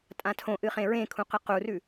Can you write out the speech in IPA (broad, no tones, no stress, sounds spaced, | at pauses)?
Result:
tʼ ã tʰ õ ʔ ɨ χ ẽ ɹ ẽ kʰ ũ q ɨ q u r ʉ